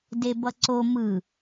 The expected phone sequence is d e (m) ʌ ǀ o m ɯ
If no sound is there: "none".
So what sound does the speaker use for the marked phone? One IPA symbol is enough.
b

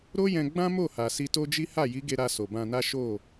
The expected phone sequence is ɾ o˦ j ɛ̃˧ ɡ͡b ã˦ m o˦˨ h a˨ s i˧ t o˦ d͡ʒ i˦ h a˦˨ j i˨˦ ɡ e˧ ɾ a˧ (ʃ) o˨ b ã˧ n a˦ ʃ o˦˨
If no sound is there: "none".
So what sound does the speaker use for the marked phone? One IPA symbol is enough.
s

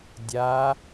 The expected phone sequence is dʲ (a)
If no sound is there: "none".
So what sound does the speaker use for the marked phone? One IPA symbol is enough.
a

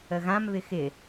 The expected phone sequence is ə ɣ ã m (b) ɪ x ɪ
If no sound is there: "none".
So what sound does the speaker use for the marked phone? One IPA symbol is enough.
β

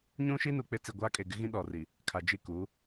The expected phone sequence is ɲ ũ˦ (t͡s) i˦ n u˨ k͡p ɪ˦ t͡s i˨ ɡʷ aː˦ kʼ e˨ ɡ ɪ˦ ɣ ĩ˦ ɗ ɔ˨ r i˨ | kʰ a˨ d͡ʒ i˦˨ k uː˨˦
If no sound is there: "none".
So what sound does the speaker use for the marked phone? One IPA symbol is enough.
ʃ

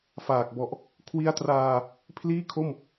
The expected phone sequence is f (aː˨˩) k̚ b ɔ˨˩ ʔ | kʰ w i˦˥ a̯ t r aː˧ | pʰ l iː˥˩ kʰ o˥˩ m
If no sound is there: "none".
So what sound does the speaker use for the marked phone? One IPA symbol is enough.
aː˨˩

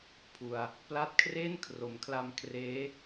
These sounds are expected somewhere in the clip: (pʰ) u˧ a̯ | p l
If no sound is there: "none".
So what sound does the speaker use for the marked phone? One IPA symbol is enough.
pʰ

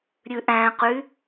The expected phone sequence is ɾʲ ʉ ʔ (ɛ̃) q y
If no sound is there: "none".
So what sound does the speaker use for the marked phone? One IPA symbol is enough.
æ̃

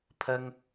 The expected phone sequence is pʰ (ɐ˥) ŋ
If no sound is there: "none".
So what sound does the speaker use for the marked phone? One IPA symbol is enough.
ɐ˥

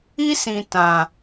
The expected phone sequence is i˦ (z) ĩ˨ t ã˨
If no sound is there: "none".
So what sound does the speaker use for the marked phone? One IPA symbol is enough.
s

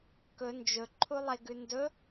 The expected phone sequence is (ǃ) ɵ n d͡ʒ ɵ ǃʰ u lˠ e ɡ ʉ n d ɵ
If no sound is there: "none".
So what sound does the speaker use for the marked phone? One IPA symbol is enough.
k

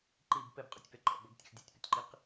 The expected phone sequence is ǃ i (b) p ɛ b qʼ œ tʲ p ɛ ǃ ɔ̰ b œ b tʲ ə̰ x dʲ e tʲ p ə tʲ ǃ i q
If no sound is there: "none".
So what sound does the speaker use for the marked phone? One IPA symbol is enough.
b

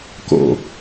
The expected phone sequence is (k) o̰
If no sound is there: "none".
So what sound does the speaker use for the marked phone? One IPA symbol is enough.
k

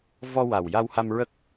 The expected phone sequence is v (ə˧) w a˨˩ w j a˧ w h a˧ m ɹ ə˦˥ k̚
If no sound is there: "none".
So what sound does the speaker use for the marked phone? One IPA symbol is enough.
ɔ˧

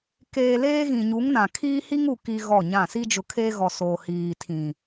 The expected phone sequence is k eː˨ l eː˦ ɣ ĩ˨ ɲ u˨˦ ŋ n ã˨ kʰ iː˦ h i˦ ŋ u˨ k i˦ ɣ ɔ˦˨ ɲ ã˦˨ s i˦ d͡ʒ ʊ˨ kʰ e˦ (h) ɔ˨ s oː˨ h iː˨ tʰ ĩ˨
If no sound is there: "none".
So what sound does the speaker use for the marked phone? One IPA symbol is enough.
ɣ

